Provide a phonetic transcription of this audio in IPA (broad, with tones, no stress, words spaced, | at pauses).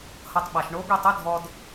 hʌ˧tˤɓa˨ʃ ɳo˨˦ɡʷe˦˨tˤʌ˦ dʱɔ˧d